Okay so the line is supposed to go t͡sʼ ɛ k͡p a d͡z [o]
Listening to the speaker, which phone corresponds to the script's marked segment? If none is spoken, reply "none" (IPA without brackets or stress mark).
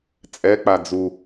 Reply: u